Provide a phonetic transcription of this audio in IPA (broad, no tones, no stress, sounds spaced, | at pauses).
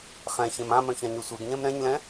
χ ɛ̃ ç ẽ m ã m œ̃ ç ã ɲ ø sʷ e ɡ ɲ ɛ̃ m ɾ ɛ̃ ɲ l ɛ̃